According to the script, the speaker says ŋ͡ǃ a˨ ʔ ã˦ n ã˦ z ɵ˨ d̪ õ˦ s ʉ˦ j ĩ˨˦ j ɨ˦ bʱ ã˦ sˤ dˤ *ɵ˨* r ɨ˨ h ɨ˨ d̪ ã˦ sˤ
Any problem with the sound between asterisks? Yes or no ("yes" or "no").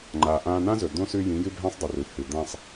no